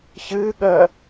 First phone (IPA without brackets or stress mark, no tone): ç